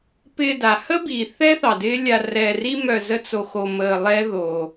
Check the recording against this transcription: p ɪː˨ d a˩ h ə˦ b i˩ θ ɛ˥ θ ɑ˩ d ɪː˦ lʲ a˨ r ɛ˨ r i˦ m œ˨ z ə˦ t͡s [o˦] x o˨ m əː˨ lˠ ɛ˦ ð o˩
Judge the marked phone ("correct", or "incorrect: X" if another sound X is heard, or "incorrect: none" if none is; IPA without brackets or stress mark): incorrect: o˨